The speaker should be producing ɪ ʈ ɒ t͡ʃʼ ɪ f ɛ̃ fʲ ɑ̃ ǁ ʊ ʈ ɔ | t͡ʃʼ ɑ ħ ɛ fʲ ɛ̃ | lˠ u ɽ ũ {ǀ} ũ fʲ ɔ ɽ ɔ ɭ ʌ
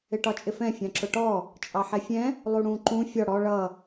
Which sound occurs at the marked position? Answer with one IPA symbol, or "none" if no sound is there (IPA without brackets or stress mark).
ǃ